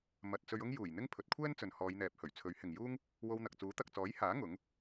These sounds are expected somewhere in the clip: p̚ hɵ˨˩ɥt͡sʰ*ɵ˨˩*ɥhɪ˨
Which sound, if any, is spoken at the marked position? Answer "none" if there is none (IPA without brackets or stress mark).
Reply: ɵ˨˥